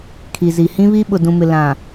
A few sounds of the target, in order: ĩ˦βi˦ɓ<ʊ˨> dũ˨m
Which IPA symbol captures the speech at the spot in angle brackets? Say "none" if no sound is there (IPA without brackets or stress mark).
ʊ˨